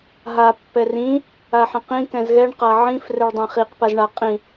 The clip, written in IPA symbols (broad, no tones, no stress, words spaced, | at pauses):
ɦa pːɛrĩ | aħɛ̃qĩ kɛ̃zɣɛɳ qaʕĩf rɛɭdˤɛ̃χiq pazɳa qʼĩ